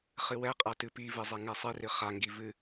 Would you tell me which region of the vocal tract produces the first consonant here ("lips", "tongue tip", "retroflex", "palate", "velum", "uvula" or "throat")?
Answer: uvula